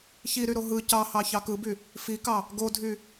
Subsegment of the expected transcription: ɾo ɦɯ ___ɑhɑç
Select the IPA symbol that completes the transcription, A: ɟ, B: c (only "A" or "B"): B